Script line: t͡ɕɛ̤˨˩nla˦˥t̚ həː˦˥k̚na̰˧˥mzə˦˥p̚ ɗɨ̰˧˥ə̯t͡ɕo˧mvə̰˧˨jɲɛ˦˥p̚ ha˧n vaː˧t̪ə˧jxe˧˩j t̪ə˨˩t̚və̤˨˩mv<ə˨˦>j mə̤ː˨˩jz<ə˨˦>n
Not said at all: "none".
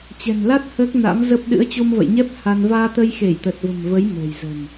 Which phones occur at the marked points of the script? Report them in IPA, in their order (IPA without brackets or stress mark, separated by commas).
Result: ə˨˦, ə̤˨˩